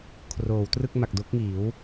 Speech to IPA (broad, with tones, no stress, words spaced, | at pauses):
kʰroː˩˦w trɯ˥˩k̚ma˨˩k̚ do˦˥k̚ŋiː˩˦w